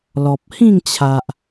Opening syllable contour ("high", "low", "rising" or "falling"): low